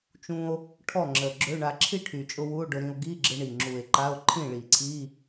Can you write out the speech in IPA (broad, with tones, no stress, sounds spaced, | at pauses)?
t͡ʃ ũ˧ o̯ | ʈʰ ɔ˥˩ ŋ͡ǁ ə˨˩ ɡ͡ǁ ø˧˥˧ ɳ a˧ ǁʰ i˥˩ ʈʰ y˨˩ t͡ʃʼ ʊ˧ w u˧˥˧ o̯ ɖ ʊ˧ ɾ ĩ˧ o̯ ɡ i˧˥˧ ɡ͡ǁ ɪ˧ ɳ i˨˩ ŋ͡ǁ u˨˩ e̯ ǃ a˧˥˧ o̯ ǃʰ ĩ˥˩ ɭ i˨˩ ǀʰ i˧˥˧